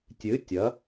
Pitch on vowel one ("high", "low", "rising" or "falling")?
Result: rising